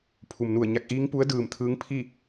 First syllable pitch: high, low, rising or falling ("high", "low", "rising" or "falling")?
low